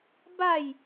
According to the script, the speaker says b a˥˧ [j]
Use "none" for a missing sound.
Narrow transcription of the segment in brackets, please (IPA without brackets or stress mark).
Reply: j